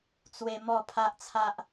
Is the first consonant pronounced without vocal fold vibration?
yes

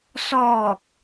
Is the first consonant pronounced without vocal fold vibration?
yes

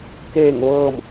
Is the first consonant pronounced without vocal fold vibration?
yes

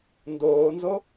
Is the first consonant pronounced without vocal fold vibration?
no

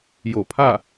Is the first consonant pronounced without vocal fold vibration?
no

